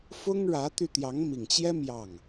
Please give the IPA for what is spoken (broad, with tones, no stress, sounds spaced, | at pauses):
f ʊ˥ ŋ ɻ ä˧˥ t̪ y˧ t̪ j ɑ˧˥ ŋ m i˨˩ ŋ t͡ɕ j ɛ˥ m j ɑ˥˩ ŋ